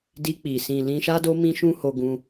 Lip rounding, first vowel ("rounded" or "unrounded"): unrounded